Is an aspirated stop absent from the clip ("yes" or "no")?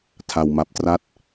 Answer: no